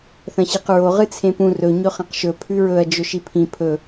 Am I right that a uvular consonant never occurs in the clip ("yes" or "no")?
no